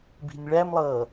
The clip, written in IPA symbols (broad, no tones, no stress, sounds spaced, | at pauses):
b i̤ nʲ ɭ æ m lˠ ʌː